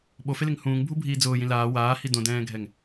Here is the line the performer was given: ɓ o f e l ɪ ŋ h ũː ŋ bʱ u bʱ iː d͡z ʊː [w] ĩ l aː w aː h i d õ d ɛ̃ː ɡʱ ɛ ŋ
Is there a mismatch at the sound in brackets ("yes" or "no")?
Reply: yes